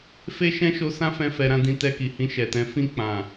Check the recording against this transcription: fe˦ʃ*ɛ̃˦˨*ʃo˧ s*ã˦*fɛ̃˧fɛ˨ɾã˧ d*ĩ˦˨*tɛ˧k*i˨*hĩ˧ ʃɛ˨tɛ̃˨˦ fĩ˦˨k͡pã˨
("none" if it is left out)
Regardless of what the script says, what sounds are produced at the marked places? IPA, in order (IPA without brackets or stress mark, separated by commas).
ɛ̃˦, ã˦, ĩ˧, i˨